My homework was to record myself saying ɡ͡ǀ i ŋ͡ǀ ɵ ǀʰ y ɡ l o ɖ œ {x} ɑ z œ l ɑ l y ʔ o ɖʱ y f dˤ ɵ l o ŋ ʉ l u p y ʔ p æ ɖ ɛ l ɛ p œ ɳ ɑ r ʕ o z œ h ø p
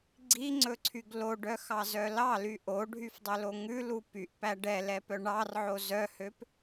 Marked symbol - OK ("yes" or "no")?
yes